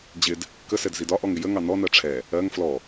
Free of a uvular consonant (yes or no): yes